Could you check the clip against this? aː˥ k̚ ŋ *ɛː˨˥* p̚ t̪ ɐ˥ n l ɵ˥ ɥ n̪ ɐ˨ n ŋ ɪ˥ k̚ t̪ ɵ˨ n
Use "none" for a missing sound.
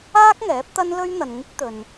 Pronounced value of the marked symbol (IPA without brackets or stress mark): ɛː˨˥